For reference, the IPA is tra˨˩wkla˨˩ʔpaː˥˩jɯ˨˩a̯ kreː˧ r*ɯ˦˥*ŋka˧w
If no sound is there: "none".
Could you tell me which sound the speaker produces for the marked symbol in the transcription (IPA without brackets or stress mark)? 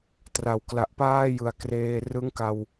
ɯ˦˥